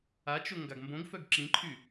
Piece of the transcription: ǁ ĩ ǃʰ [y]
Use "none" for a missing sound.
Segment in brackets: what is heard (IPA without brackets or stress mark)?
y